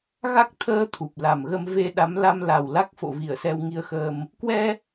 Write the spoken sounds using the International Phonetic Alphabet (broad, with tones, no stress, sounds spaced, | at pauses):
ɣ a˦˥ k̚ t̪ʰ əː˧ t̪ʰ u˨˩ p̚ l a˨˩ m ɣ ə˧ m v e˧ ɗ a˨˦ m l a˧ m l a˨˩ w l a˦˥ k̚ f o̰˧˨ v i˧˩ ə̯ s ɛ˧ w ŋ i˧ ə̯ x əː˧ m | k w ɛ˧